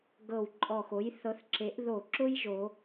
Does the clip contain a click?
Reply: yes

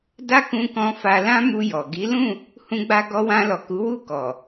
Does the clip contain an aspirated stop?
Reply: no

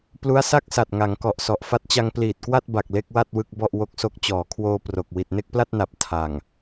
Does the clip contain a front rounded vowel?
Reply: no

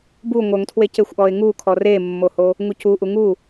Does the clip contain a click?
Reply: no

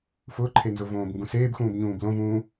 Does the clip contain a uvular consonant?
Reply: no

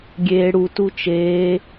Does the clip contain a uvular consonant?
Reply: no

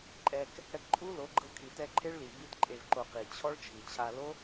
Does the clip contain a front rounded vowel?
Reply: no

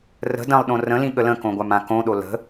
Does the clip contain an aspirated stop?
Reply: no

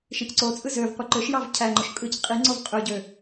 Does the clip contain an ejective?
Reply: yes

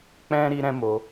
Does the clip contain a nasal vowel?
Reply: yes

